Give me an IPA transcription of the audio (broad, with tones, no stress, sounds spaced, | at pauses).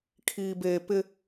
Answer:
kʰ iː˨ b eː˨ p ɪ˦